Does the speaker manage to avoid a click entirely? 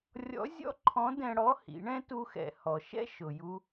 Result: no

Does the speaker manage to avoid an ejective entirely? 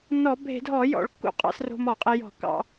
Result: no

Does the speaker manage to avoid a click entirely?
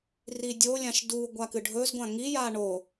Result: yes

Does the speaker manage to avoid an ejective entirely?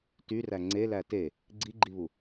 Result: yes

